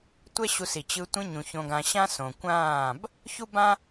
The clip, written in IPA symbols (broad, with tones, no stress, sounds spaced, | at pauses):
tʷ ɛ˦ ɕ u˧ s i˨ t͡ɕ ɯ˧ tʷ ĩ˧ ɲ ũ˨ ç õ˧ ɡ ã˧ ɕ ã˦ s õ˨ kʷ ãː˦˨ b | ç u˦ b ã˦